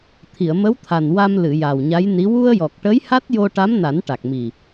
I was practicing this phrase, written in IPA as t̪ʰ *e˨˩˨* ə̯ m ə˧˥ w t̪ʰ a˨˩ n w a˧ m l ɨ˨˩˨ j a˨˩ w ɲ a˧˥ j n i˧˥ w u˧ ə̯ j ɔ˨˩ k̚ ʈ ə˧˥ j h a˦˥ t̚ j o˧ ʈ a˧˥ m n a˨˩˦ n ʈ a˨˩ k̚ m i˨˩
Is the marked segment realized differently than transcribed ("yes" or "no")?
yes